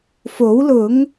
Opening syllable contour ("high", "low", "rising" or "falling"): rising